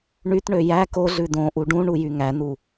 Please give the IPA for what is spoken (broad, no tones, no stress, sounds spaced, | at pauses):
ɳ y t ɳ ø j æ k o ɮ ʉ d õ ʔ u ɖ ũ ɳ u j y ŋ æ n u